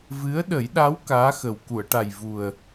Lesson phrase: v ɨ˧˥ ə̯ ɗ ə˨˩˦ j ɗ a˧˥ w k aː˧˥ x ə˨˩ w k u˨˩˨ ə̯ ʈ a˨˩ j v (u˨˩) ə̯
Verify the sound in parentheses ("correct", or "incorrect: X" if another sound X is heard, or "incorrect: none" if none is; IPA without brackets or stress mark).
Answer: correct